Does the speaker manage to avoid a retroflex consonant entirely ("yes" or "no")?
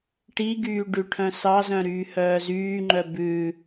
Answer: no